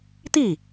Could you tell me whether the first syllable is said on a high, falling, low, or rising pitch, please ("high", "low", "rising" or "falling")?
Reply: falling